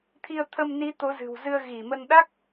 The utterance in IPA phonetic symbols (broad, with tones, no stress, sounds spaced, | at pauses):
t̪ʰ i˧ ə̯ t̪ʰ ə˧ m n i˨˦ t̪ o˨˦ z ɨ̤˨˩ w z ɨ˧ ə̯ ɣ i˧˩ m ə˧ n ɗ a˦˥ k̚